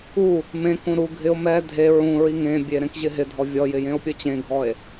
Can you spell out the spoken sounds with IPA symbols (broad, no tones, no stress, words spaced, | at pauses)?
u | mẽkũ ɾu ɡʱɪo̯ mɛ dʱe ɹũ ɹiŋẽbʲe ɾẽkʑɪɦɪdʱɔ vʲɔjɪ jẽo̯pʲot͡ɕẽɡʱɔe̯